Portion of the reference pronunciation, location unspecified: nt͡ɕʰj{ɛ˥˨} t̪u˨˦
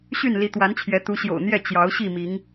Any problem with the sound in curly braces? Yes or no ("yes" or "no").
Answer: yes